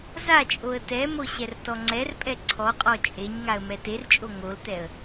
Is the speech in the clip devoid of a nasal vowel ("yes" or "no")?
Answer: yes